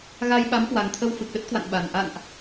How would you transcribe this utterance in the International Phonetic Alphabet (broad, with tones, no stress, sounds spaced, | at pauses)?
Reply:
ɣ a˧ j ɓ a˨˦ m k w a˨˩ ŋ t̪ʰ ə˧ w f ɨ˨˩ k̚ ɗ ə˦˥ t̚ k w a̰˧˨ n ɓ a˨˩ n ʔ a̰˧˨ n ʔ